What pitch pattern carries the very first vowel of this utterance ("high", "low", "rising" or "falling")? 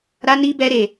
high